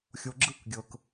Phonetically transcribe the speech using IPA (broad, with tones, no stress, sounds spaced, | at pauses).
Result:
xʲ o˨ ɡ͡ǁ ɯ˦˨ k ɡʲ ɤ˨ k